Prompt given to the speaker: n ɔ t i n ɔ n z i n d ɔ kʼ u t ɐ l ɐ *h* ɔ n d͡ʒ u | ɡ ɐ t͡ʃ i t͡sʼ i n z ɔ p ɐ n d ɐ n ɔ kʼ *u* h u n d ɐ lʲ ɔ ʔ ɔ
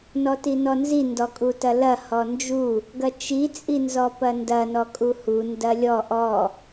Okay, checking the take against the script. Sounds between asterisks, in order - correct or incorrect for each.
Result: correct, correct

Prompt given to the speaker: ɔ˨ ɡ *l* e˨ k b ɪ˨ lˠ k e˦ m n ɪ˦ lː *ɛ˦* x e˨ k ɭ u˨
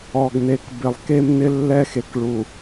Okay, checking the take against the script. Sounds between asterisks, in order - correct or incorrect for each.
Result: incorrect: n, correct

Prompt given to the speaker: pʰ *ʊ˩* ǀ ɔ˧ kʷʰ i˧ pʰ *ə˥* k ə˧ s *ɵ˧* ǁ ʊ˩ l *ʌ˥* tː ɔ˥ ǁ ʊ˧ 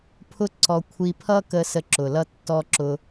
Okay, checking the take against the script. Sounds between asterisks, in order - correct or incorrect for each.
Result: incorrect: ʊ˥, incorrect: ʌ˥, incorrect: ə˧, correct

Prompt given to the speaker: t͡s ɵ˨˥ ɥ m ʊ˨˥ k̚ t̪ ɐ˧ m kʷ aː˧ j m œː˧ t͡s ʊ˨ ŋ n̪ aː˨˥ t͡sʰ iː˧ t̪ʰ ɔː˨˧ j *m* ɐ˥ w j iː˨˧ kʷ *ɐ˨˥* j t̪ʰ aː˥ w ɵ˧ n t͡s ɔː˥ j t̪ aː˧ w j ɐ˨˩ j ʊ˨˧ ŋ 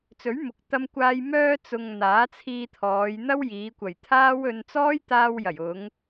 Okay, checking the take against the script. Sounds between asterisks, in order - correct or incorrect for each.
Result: incorrect: n̪, incorrect: ɐ˨˩

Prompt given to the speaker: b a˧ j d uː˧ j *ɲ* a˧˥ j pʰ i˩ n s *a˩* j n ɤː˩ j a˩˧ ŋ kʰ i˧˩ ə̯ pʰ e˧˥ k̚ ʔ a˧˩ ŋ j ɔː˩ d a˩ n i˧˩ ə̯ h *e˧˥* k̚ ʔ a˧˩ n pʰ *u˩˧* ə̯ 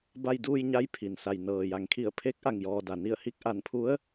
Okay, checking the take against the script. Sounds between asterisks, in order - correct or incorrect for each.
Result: correct, correct, incorrect: i˧˥, incorrect: u˧˥

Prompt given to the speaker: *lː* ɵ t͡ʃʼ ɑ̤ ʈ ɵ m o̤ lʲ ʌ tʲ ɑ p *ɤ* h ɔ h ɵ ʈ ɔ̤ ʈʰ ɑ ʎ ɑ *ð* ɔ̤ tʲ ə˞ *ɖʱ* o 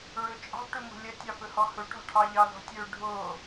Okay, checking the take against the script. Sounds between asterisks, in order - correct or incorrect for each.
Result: incorrect: ɹ, incorrect: ɵ, correct, correct

